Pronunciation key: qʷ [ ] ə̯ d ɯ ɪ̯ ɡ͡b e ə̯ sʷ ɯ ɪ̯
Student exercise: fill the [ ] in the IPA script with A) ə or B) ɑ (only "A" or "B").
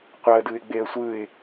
B